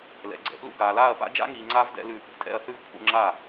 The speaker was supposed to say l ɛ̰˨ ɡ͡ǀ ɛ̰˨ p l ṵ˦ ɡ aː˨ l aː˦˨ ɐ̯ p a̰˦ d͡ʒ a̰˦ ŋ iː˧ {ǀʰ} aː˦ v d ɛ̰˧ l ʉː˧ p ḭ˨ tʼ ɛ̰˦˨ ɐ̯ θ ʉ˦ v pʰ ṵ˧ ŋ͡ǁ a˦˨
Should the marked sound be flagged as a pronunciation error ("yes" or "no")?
yes